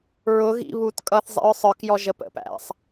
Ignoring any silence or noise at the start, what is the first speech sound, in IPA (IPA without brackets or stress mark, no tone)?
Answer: ɹ